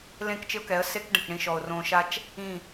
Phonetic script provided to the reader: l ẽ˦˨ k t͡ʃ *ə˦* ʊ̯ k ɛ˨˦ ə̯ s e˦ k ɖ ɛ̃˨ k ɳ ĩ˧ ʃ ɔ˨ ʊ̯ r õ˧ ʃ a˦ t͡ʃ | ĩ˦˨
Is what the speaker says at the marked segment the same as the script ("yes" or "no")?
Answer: no